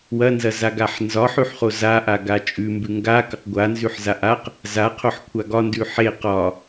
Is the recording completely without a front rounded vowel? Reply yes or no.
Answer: yes